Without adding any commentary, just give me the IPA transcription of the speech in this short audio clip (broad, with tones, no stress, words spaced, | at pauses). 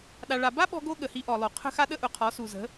ɗa˧ɭa˧ ba˦ɓɔ̤˧ɡo˧ ɠə˨hi˧ʔɔ˨lˠo˨ qʰə̤˦xa˦ ɗə˦ʔʊ˨qʰɔ˨˦ su˨zə̤˨˦